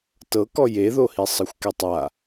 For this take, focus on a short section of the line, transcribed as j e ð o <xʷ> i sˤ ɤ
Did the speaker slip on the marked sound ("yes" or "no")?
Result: yes